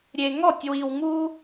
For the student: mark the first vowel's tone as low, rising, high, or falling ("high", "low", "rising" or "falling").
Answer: low